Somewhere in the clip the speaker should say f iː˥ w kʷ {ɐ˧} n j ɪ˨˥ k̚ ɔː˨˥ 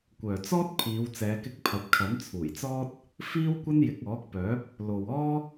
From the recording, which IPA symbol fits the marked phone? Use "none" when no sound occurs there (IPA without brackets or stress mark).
ɐ˥